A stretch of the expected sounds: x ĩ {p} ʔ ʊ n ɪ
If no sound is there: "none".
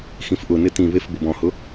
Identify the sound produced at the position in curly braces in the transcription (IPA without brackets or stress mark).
f